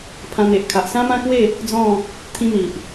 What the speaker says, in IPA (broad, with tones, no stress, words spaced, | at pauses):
pʰã˧n̪e˨ʔkʰa˨ʔ sã˦mã˦kwe˥˧ | d͡zɔ̃˥˧ | t̪ʰĩ˦n̪i˨ʔ